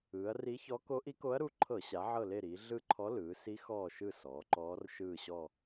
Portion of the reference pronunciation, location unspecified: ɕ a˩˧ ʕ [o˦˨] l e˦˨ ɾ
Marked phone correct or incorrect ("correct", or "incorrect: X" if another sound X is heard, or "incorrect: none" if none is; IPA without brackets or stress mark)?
incorrect: ɤ˦˨